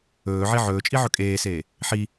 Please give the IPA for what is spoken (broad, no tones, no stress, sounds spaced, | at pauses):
ɵː ʕ i ʕ ɵː t͡ʃʼ i ʕ ɵ kʼ eː s eː | ħ i